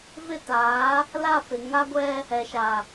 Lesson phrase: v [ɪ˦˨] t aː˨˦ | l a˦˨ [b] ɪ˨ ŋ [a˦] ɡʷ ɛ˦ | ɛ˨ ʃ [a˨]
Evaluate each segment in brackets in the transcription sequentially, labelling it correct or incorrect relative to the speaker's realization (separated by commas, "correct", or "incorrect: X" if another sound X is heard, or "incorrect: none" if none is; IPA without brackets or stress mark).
correct, incorrect: f, correct, correct